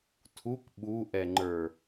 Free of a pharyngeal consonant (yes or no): yes